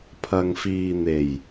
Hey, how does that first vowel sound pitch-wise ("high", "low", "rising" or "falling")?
low